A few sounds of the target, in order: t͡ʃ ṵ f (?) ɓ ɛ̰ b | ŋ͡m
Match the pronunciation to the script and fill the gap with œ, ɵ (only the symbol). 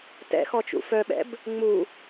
œ